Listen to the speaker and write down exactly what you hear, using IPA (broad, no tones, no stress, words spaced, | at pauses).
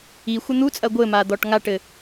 ixʷɘ n̪ut͡sʼɐ ɡʷɘma d̪ɔʈŋaʈɘ